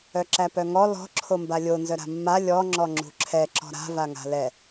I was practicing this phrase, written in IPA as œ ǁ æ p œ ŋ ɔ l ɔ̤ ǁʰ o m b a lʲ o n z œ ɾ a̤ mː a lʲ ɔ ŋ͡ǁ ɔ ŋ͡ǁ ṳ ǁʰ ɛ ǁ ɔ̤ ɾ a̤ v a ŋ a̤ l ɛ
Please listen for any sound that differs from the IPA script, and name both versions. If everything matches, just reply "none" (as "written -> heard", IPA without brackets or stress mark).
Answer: none